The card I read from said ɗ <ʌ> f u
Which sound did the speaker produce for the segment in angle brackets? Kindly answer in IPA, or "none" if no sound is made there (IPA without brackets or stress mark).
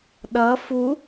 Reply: ʌ